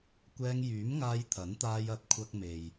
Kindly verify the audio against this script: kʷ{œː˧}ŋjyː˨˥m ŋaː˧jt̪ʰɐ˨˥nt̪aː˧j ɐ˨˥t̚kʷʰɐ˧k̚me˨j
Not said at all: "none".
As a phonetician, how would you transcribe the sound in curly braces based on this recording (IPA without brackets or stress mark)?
ɛː˧